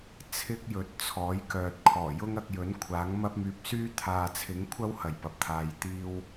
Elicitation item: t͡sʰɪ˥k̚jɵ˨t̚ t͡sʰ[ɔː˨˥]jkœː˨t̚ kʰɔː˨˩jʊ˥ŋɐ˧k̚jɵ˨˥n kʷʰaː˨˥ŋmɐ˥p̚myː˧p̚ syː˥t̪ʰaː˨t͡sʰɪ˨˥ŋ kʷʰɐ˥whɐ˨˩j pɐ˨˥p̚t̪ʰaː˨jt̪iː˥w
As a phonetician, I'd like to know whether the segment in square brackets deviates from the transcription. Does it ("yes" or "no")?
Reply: no